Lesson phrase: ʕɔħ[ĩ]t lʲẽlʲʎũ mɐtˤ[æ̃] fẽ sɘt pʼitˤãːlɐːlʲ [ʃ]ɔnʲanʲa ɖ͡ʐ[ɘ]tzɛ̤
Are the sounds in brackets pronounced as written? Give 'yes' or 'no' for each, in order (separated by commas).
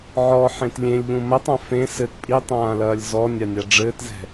no, no, no, no